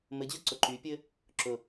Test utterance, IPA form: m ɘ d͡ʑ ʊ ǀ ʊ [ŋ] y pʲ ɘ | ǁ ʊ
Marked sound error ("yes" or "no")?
yes